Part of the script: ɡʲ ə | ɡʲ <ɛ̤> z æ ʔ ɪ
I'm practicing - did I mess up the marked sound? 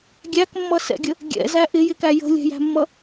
yes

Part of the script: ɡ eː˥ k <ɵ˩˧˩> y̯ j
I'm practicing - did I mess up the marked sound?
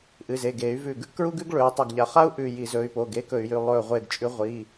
yes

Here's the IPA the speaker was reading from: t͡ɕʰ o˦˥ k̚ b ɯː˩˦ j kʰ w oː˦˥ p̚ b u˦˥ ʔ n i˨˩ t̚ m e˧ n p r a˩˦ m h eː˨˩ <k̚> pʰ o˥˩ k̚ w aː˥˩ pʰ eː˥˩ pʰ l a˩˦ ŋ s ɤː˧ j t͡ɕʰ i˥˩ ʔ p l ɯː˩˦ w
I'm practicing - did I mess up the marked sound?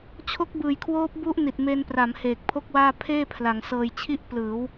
no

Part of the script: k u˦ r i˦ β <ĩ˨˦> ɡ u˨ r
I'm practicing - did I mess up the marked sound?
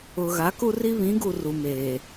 no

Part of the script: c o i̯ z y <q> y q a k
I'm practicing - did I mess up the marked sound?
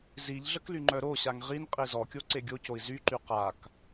yes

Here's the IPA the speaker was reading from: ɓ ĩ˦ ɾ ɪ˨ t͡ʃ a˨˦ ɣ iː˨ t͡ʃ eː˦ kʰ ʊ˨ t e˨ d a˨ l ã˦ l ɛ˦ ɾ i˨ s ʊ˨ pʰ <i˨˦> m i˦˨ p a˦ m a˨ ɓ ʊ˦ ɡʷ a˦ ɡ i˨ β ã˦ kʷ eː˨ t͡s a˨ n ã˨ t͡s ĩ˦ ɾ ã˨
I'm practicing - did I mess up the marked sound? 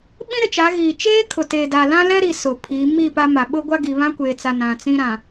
no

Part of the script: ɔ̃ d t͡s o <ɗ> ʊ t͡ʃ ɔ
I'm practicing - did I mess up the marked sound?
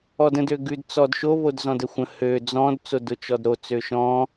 yes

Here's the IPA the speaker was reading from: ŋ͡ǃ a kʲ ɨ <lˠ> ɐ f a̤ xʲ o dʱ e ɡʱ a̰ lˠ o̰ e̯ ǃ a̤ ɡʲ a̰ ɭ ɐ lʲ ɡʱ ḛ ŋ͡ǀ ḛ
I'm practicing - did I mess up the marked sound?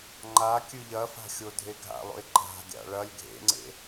yes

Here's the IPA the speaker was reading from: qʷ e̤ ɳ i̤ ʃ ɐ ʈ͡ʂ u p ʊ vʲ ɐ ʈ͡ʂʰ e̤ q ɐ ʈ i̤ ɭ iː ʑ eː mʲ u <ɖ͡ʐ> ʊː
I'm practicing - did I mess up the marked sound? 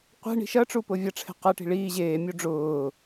no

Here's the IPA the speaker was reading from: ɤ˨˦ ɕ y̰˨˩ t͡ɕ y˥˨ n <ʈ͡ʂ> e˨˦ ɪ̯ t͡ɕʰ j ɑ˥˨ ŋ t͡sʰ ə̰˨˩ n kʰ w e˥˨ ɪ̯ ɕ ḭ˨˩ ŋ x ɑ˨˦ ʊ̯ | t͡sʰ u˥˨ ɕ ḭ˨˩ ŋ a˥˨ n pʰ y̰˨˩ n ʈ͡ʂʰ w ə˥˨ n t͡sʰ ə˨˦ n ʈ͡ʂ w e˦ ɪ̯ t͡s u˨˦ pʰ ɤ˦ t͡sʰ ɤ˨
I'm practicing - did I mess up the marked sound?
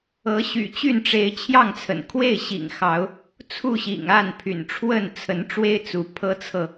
no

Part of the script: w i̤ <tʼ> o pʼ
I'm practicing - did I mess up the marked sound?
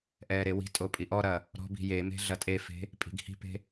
no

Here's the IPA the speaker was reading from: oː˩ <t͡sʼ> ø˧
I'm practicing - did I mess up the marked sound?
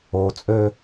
no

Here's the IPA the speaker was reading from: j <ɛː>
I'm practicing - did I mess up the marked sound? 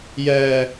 no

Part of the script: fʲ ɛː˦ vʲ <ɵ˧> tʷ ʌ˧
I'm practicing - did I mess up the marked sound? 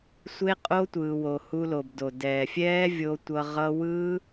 yes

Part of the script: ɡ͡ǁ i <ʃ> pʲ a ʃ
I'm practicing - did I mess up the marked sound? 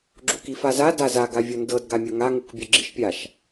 no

